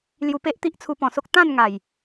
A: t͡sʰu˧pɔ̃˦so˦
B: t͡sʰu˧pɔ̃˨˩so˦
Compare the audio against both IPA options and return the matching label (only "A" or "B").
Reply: B